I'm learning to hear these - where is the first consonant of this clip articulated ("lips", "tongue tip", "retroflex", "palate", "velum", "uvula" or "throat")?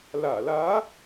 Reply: tongue tip